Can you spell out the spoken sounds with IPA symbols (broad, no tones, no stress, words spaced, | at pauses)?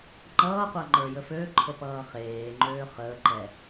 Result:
ŋ͡ǃʌːqʷa ŋ͡ǃə˞jəføǃʰə pʌːχeːŋ͡ǃøː χəːǃɛ